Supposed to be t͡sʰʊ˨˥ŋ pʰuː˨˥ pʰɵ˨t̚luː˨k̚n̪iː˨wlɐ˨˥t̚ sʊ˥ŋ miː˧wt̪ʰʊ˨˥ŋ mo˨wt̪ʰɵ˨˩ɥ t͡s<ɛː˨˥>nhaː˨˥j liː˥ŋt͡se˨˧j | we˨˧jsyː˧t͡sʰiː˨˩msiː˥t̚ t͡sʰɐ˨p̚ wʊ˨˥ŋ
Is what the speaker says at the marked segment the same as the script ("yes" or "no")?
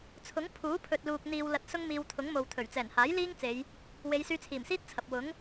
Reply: no